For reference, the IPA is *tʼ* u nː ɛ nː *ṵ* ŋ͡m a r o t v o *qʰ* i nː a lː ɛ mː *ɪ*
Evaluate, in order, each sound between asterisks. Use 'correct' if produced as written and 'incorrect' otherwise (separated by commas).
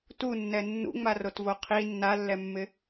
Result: incorrect, correct, correct, correct